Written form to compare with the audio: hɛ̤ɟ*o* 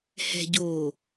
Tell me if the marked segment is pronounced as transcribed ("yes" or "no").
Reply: yes